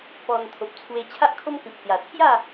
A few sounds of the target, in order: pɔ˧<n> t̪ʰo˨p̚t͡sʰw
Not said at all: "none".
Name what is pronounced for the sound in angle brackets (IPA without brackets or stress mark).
n